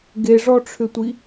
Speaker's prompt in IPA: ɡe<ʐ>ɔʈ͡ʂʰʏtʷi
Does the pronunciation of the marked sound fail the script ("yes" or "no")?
no